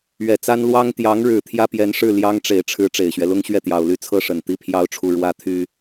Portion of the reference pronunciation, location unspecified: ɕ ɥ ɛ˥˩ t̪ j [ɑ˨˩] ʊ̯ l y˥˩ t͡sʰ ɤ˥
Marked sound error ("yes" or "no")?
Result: no